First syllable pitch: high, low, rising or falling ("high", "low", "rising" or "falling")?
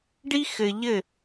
high